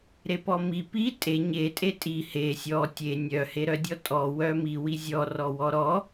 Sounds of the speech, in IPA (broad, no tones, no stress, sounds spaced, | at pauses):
ɾ e p ɔ m i p i tʼ e ɲ e tʼ e tʼ i h e sʲ ɔ tʲ e nʲ œ h e ɾ œ dʲ ɔ tʼ ɔ w œ m i w i zʲ ɔ r ɔ w ɔ ɾ ɔ